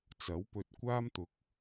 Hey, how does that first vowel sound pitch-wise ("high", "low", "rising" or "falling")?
rising